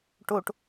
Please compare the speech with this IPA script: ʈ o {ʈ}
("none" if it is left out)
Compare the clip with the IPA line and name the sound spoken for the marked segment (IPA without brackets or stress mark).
ʈ